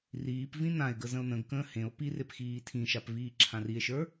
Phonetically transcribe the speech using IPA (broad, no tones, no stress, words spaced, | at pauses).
riːpvĩ nãe̯ɡə zə̃o̯nə̃ɡkə̃ː hẽo̯ pirep xiːtʰĩʃap viːǁʰãrie̯ʃə˞